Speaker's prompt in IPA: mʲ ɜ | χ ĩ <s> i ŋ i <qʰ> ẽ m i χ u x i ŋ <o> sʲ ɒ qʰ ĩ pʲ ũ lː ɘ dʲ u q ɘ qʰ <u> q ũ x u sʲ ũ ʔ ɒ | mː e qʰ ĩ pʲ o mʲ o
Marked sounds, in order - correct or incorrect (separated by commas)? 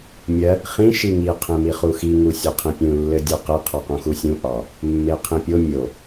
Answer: incorrect, correct, incorrect, incorrect